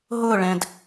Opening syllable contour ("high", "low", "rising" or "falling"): falling